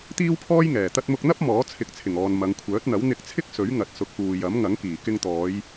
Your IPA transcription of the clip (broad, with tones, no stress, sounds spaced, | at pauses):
t̪ iː˥ w pʰ ɔː˥ j ŋ ɛː˨˩ t̪ ɐ˧ t̚ m ʊ˧ k̚ n̪ ɐ˥ p̚ m ɔː˨˥ t͡sʰ ɪ˨˥ k̚ t͡sʰ ɪ˨˩ ŋ ɔː˨ n m ɐ˨˧ ŋ kʷʰ œː˨˥ t̚ n̪ ɐ˨˥ w n̪ ɪ˧ k̚ t͡sʰ ɪ˥ k̚ s ɵ˨˥ ɥ ŋ ɐ˨ t̚ s ʊ˨˥ k̚ p uː˨ j ɐ˨˥ m ŋ ɐ˨˥ ŋ k iː˨˩ k ɪ˧ ŋ t̪ ɔː˨˧ j